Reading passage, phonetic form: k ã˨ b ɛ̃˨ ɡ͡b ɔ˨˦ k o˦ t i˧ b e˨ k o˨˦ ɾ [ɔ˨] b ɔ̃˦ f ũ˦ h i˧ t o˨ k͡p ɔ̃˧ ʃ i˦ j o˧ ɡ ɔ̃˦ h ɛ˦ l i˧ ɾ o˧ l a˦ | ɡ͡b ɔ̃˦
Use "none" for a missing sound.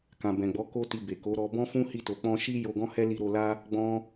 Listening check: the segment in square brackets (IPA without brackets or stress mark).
ɔ˧